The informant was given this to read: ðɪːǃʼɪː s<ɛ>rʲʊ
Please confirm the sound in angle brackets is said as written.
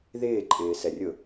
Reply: yes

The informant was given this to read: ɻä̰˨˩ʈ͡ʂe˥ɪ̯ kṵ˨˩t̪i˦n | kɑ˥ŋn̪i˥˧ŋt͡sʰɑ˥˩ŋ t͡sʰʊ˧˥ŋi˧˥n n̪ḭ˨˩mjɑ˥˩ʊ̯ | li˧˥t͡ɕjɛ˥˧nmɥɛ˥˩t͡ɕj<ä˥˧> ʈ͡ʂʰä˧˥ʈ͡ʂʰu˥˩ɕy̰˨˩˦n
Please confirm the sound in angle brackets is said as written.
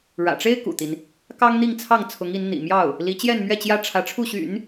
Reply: no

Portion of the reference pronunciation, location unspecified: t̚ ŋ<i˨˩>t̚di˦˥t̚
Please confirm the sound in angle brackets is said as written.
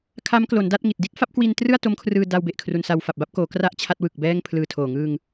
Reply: yes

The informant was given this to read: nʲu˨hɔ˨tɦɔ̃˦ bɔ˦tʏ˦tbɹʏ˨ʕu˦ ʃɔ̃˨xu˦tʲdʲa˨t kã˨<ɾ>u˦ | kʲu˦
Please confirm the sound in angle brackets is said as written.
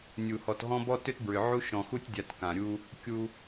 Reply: no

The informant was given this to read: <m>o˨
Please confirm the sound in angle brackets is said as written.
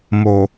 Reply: yes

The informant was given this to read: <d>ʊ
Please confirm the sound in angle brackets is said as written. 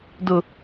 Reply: yes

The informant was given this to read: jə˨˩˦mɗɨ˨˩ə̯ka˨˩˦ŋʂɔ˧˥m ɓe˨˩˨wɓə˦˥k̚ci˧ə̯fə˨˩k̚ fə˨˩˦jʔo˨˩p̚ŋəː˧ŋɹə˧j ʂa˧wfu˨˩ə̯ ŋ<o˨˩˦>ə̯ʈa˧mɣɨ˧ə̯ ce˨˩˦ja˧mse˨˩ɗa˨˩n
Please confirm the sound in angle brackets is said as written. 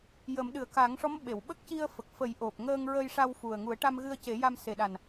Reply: no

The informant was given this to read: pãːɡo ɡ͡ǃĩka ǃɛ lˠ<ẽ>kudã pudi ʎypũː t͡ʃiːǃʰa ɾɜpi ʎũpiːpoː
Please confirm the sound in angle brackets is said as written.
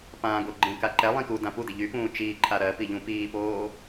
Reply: no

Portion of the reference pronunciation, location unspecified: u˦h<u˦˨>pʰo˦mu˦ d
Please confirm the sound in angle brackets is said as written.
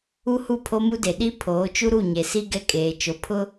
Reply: yes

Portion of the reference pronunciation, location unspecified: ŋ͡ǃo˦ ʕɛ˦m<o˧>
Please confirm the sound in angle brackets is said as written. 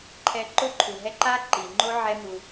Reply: no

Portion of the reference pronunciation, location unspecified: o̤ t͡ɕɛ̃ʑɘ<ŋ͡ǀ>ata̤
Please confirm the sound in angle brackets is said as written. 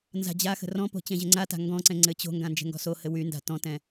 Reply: yes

